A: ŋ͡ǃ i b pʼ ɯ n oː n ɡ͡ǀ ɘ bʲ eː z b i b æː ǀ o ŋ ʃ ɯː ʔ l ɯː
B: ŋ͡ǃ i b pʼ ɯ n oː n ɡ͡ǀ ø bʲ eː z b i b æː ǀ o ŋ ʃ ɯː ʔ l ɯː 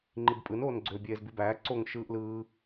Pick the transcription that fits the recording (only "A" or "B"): B